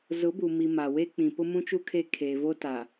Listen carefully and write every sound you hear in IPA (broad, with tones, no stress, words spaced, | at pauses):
zʊ˨˦bu˨mi˨ ma˨we˦ k͡pĩ˨ pʊ˦mũ˦t͡ʃu˦ kʰe˦ kʰeː˨vo˦ta˨